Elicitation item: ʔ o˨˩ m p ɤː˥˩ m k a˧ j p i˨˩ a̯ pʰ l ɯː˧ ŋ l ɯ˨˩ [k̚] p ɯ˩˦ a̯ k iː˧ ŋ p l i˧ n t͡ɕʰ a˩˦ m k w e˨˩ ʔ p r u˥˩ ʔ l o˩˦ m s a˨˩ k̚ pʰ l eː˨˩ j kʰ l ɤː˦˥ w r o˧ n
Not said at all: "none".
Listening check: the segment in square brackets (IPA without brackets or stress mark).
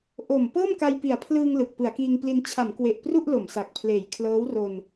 k̚